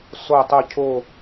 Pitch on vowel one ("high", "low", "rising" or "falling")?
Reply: falling